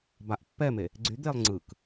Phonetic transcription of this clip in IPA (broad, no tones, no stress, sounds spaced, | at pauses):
b a ʔ pː ɛ m e | ɡ͡ǀ y d̪ e lˠ ŋ͡ǀ ɯ k